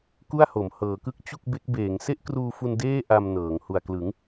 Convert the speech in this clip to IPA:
ku˥˩a̯ho˩˦m hɤː˩˦kɯ˦˥k̚ t͡ɕu˥˩k̚be˦˥k̚beː˩˦ŋ se˥˩ʔkruː˧fu˧n deː˥˩ ʔa˧m nɤː˩˦ŋ hu˨˩a̯klɯ˩˦ŋ

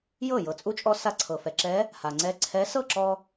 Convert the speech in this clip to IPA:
jɤ˥˩ jɤ˩t͡sʼu˧˥t͡ʃʼɔ˧ sa˧ǀʰɤ˩fɛ˩ǁɛ˧˥ | ha˩ŋ͡ǀɛ˧˥ ǀʰɛ˧˥ sɤ˥˩ ǁɔ˧

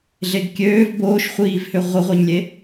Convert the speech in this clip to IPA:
ɮeɡkʲøːv boːʃχʷiːvhø ʁʷəʁʷeɲlʲe

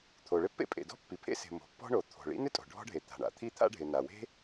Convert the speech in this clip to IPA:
t̪ʰo˩ɭɪ˥pːḛ˥pʼḛ˩ dɔ̤˥pːi˩pʰḛ˥ se̤˩ mo̤˩pːɔ̤˥ɳo˩ t̪ʰo̤˩ɭḭ˥ n̪ɪ˥tʼo̤˩ ɖʱɔ̤˥ɖʱe˩t̪a̤˩ɳa̰˩ t̪ʰi˥t̪ʰa̰˥ɖʱɪ˩ na˩we̤˥

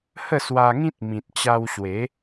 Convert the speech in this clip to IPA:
hə˥˧swa˧ŋĩ˦t̚mĩ˨t̚ t͡ɕa˧wɕwe˨˦

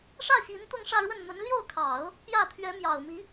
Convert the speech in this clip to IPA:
ʂä˥˩ɕi˧˥n t̪ʊ˥˧ŋʂä˥˧ɻwə˥˩n n̪ə˧˥nljo˥˩ʊ̯kʰɑ˨˩˦ʊ̯ | pjä˥˩ t̪ʰɥɛ˧˥mjɑ˨˩ʊ̯mi˧˥

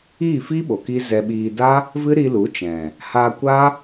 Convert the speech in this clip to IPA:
iː˦˨fiː˦ɓo˨ ki˦zɛ˧ɓiː˧ da˦ | vɨ˦ɾi˧lu˨˦ t͡ʃɛ̃˨ | ha˧kʷa˦

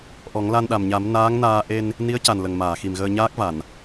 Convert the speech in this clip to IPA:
ʔɔ˨˩˦ŋla˧nɗa˨˩mɲa˨˩˦m naː˧˥ŋnaː˧ ʔe˧n | ni˧˥ə̯ca˨˩n lə˨˩ŋmaː˨˩˨xi˨˩mɣəː˧ ɲaː˦˥k̚va˨˩˨n

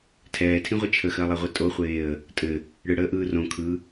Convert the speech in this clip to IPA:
tʰɛːtʰĩʁʷɘ t͡ʃʰəxɜlˠeʁʷi tʼoχʷeːə̯ | tʼɘ | ɽɯɽəːʔɯː rõ kʰɯ

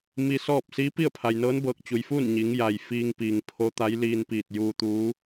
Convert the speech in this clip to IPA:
mi˧sɔː˥˨p̚ siː˧˥pi˥˨ə̯pʰa˩jnɤː˧˥n bɤː˧˩k̚t͡ɕu˩jfuː˥˨n ɲi˩˧ŋ ja˩j fiː˧ŋpiː˩ŋ pʰo˧˥t̪a˧˥j liː˧npiː˧˩t̚ juː˧t̪uː˧˥

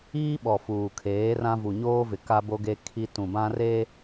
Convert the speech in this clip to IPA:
iː˦ɓɔ˨ fuː˨kʰeː˨˦rã˦ vu˨ɲoː˦vɪ˨ ka˦bo˦ɡe˦ kʰi˦ tũ˨bã˦re˦

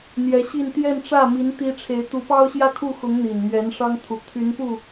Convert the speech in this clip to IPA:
n̪jɛ˧˥ɕi˥˧n t̪jɛ˥˧nʈ͡ʂä˥˩ mi˧˥n t̪i˥ʈ͡ʂʰe˧˥ɪ̯ t̪u˧˥pɑ˥ʊ̯ ɕjä˥˧kʰu˥˩xʊ˧˥ŋ n̪i˨˩nmɥɛ˧˥n ʂɑ˥ŋt̪ʰu˨˩ t̪ʰy˧˥npu˥˩

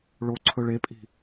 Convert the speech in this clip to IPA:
ɭo ǀʰɵɭepʼi̤

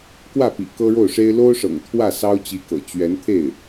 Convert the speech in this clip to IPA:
kwä˥˩pḭ˨˩ kɤ˥ɻo˥˩ʊ̯ʂe˥ɪ̯ lo˥ʊ̯ʂɤ̰˨˩ŋ t̪ʰwä˥˩ sɑ˥ʊ̯t͡ɕi˧˥kɤ̰˨˩ t͡ɕɥɛ˧˥nt̪ʰe˥˩ɪ̯

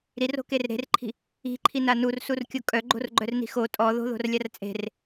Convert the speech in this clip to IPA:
ɾiro̤ker ɾe̤rǃʰi̤ | i̤ǃʰina nursurkʲo kʼœɡ͡ǃo̤rɡ͡ǃœrni̤ xo tʼɔ ðo̤ðo̤rlʲar t͡sʼe̤r

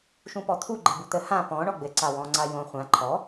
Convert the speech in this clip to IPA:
ʃũpɔt̪ʰu ɡ͡ǃɘbut̪ə hã pɔ̃ ɳɔɡ͡bɘ ǀawɔ̃ ŋ͡ǀajõ χʷã ǃʰɔ

